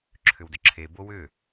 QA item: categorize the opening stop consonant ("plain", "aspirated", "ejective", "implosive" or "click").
click